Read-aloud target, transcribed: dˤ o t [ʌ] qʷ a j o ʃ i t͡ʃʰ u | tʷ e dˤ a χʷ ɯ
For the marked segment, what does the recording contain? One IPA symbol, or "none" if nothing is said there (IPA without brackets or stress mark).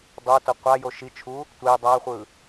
ʌ